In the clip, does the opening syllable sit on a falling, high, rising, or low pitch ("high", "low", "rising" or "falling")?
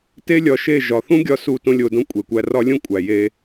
high